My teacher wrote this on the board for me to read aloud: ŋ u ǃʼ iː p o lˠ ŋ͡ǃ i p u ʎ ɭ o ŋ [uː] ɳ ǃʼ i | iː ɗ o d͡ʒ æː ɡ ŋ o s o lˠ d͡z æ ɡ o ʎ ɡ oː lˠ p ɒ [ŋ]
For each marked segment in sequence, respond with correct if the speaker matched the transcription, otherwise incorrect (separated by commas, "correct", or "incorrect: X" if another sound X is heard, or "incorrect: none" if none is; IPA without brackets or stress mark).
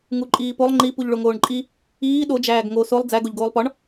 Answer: incorrect: oː, incorrect: ɳ